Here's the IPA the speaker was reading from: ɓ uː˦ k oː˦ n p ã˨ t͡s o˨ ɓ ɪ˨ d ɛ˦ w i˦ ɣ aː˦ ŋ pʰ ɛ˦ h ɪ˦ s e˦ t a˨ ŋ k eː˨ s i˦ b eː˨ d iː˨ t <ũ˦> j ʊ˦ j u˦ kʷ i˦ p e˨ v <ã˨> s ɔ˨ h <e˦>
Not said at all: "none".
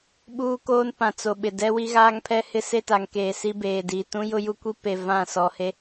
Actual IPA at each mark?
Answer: ũ˦, ã˦˨, e˦

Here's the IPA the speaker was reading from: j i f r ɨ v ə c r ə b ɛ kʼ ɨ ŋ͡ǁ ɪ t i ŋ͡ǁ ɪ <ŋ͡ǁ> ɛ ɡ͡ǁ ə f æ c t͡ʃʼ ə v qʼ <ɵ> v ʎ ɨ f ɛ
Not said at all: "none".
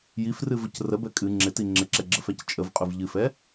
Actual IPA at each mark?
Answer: ǁ, ɵ

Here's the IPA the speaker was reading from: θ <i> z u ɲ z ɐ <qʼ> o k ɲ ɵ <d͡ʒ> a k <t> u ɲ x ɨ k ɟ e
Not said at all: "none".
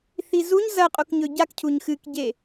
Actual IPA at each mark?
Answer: i, qʼ, ɟ, cʰ

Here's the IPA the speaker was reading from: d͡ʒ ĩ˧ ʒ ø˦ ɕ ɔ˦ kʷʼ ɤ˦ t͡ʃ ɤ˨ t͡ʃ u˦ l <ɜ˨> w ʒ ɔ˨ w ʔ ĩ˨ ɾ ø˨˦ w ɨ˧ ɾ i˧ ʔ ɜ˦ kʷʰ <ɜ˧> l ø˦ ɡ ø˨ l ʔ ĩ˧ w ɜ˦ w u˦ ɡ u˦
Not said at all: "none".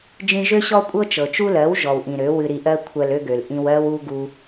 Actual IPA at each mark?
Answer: ɜ˨˦, ɜ˧

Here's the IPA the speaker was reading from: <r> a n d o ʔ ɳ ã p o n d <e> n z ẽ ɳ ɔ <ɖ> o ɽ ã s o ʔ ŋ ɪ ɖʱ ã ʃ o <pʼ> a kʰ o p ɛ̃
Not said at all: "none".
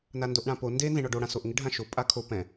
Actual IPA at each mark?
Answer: n, e, ɖ, pʼ

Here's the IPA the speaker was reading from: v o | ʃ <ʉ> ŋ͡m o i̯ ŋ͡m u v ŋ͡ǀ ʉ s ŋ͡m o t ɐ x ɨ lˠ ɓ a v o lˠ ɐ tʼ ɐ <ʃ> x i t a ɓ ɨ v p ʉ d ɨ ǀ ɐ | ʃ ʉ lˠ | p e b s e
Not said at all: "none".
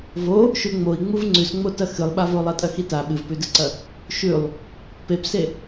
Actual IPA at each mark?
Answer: ʉ, none

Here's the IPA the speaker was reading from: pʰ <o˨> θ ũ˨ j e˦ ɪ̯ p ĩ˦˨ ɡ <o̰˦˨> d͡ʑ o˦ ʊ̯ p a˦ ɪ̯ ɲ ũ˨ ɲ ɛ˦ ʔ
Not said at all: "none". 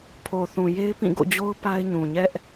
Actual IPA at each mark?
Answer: o˨, o̰˦˨

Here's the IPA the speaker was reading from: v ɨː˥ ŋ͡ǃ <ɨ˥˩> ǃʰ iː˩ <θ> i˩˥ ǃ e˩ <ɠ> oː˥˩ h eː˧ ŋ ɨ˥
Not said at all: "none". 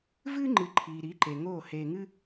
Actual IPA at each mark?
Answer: ɨ˩˥, ɾ, ŋ

